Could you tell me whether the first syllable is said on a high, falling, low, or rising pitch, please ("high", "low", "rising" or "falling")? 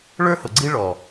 high